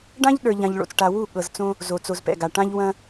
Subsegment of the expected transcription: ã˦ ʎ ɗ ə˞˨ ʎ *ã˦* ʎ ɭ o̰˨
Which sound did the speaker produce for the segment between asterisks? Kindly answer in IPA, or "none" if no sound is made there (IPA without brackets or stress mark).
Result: ã˨